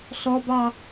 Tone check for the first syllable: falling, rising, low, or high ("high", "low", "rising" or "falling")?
high